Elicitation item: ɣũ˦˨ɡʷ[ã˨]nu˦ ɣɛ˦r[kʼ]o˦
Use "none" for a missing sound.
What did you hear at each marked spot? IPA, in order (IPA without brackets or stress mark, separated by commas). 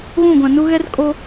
ã˨, kʼ